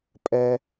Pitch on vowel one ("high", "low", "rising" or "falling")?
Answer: high